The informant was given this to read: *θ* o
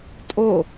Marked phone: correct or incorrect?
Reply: incorrect